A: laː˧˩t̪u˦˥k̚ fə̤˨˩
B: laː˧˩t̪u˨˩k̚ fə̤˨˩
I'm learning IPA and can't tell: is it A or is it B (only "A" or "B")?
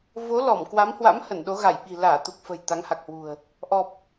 B